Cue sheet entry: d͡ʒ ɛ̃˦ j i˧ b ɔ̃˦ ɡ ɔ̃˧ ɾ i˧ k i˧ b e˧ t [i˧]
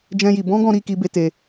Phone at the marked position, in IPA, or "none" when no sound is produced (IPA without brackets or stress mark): e˧